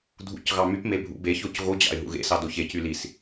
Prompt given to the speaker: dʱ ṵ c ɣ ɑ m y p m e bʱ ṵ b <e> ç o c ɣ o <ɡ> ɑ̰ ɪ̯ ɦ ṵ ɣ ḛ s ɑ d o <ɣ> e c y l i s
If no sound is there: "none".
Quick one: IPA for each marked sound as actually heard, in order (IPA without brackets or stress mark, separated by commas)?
e, d͡ʑ, ç